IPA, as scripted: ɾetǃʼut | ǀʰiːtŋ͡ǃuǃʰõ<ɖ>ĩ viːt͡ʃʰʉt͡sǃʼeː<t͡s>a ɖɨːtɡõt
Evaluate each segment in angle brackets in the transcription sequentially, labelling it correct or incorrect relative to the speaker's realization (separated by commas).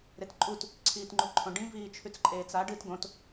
correct, correct